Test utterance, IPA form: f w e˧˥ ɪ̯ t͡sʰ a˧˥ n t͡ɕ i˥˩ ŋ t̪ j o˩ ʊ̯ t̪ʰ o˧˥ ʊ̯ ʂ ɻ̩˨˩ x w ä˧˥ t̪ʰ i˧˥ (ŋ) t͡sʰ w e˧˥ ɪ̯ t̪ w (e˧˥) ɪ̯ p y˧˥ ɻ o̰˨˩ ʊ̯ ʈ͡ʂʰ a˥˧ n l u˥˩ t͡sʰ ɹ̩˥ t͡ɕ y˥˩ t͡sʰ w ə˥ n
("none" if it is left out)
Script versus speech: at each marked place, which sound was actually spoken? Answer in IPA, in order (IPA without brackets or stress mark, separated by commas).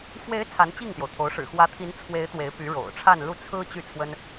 n, e˧˥